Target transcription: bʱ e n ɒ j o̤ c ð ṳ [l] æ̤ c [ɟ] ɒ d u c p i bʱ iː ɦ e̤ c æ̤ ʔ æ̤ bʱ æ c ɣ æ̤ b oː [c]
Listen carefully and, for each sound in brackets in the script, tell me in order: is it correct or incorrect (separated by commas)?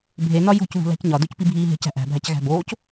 correct, incorrect, correct